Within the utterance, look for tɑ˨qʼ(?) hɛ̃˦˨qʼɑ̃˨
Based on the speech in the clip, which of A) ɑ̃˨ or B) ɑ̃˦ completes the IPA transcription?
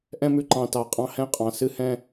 B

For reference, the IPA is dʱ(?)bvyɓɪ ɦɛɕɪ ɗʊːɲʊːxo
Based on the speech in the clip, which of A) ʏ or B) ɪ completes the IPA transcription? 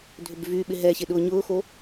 A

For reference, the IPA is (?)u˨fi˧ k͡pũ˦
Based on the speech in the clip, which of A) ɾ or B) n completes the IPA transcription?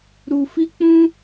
A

